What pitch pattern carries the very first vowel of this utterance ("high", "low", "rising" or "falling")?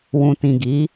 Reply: low